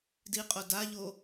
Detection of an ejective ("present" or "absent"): present